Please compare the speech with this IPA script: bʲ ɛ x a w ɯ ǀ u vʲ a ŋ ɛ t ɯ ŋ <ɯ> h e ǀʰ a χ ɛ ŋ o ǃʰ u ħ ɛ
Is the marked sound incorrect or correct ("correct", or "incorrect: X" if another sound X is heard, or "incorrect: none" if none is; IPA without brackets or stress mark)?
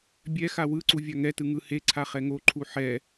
correct